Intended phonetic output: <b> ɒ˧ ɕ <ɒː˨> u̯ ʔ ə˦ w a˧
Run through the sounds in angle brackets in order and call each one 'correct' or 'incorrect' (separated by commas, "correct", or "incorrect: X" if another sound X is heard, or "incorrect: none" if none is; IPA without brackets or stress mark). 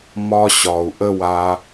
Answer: incorrect: m, incorrect: ɒ˨